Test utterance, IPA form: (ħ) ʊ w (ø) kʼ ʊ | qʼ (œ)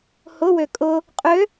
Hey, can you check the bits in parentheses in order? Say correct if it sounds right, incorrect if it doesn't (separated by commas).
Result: incorrect, correct, incorrect